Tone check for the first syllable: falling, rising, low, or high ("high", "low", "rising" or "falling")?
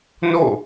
falling